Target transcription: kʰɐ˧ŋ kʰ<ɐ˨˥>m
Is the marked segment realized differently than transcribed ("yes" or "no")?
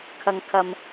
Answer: yes